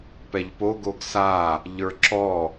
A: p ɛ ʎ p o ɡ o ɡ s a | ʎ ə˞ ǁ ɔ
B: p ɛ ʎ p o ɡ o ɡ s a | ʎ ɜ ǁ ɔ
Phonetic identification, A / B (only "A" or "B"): A